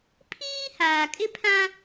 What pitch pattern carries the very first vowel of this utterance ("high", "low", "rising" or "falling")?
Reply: high